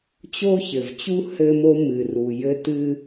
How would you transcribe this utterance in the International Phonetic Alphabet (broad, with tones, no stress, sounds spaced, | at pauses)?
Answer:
t͡ɕ o˥ ç ɘ˩ v t͡ɕ u˥ h ɘ˥ m o˥ m ɨ˩ r u˩ j ɘ˥ t ɨ˥